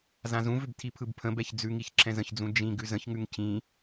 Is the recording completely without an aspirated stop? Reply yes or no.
no